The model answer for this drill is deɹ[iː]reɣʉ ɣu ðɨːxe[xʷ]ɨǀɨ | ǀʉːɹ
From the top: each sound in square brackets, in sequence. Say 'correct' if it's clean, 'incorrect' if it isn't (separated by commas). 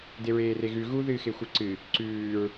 incorrect, correct